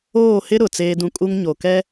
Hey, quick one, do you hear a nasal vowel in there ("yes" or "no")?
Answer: yes